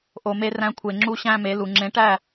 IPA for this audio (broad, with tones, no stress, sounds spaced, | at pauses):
ʔ o˨ m e˧ r æ̃˧ kʷʰ e˨ ŋ͡ǁ u˧ ɕ æ̃˦ m e˨˦ l u˨ ŋ͡ǁ ẽ˨˦ ʈ æ˦˨